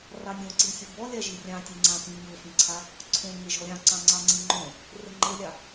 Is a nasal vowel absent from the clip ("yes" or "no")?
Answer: no